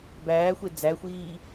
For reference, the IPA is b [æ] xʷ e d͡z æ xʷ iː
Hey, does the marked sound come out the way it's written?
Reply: no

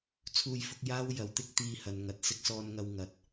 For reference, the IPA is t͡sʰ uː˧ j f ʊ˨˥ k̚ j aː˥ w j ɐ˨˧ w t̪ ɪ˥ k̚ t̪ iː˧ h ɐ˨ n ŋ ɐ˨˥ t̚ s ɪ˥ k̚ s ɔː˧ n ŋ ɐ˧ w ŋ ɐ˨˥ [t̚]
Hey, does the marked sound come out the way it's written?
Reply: yes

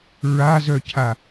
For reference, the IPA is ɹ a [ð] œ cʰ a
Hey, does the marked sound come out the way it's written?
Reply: no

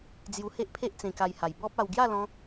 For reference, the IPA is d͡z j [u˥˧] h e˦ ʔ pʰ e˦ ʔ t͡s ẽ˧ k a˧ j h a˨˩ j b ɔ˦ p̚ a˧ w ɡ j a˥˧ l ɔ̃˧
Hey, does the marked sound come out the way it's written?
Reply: no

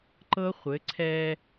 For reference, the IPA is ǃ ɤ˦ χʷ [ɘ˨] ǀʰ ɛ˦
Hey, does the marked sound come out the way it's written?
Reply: no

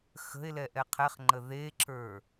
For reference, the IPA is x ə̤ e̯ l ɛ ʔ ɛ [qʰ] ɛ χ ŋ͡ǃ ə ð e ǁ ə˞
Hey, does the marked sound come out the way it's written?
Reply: yes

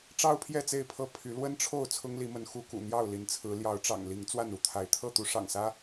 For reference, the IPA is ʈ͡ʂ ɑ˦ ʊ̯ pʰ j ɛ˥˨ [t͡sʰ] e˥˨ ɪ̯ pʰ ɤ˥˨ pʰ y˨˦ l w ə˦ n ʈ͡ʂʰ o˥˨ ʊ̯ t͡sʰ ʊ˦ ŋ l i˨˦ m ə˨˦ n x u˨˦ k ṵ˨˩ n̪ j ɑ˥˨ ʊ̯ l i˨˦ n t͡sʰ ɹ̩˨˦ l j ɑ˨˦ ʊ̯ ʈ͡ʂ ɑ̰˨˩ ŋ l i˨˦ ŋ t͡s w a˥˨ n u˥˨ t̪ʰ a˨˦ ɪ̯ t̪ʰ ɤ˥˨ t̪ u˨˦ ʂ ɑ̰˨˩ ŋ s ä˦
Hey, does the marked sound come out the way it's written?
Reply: no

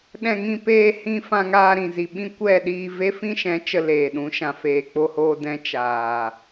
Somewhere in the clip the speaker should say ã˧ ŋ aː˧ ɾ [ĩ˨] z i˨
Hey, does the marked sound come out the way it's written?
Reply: yes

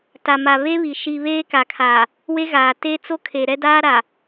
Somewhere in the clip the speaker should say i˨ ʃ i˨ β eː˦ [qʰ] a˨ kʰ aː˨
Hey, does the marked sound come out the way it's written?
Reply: no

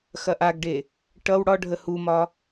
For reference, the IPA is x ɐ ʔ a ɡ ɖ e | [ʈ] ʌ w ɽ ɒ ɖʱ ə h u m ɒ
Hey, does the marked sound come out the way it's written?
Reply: yes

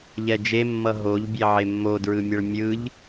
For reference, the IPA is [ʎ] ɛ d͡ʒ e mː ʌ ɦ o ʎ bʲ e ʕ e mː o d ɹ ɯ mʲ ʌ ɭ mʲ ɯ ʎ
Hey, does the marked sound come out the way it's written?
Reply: yes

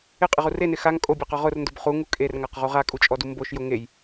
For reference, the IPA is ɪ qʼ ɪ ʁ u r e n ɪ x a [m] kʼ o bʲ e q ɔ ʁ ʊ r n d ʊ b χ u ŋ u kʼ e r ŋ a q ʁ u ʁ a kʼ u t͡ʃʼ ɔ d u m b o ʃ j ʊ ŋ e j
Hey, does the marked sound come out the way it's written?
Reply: no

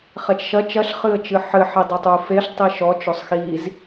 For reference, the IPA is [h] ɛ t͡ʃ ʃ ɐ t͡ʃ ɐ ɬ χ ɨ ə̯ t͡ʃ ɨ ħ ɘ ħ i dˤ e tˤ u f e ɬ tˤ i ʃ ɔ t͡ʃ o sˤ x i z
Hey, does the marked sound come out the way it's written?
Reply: no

